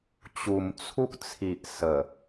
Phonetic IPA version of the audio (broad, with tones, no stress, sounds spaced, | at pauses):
t͡ɕ u˨˩ m t͡sʰ u˦ k̚ t͡sʰ i˨ ʔ s ə˨˩